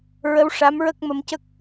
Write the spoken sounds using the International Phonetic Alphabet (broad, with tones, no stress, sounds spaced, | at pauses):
ɹ ə˧˥ w ʂ a˧˥ m ɹ ə˦˥ k̚ m ə˧ m c ə˦˥ k̚